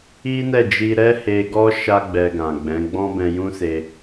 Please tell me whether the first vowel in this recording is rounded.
no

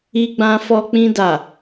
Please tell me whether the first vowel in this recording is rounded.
no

